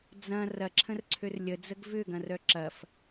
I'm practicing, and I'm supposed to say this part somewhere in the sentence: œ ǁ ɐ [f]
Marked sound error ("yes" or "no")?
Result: no